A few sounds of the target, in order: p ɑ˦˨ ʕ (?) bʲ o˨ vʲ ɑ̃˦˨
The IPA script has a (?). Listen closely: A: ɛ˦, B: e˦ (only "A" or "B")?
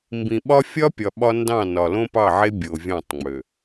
B